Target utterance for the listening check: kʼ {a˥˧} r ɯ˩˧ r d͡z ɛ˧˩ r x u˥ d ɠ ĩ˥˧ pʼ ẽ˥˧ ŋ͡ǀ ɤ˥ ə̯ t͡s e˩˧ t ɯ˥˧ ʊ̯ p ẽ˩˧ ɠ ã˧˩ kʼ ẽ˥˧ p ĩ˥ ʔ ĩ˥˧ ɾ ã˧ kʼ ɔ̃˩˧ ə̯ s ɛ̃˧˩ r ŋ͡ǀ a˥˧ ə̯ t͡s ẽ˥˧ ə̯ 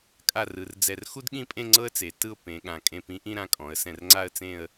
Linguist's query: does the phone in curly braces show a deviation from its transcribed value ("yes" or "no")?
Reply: no